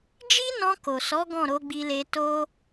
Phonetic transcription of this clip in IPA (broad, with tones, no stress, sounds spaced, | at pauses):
d͡ʒ i˦ n ɔ̃˧ k o˨ s ɔ˨˦ ɡ ɔ̃˦˨ ɾ o˨˦ ɡ͡b i˧ l e˧ t o˦